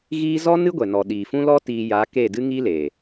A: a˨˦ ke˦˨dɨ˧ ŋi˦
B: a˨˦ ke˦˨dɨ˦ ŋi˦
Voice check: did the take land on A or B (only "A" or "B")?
B